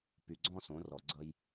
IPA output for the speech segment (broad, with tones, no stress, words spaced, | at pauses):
py˨ ɡ͡ǀɔ̃˦sõ˨˦rɔ˨ ɡ͡ǀʌ˦j